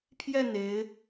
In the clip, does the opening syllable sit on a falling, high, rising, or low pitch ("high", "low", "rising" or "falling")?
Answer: falling